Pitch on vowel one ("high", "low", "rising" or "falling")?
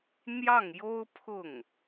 falling